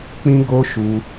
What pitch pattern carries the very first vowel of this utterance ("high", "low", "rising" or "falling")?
high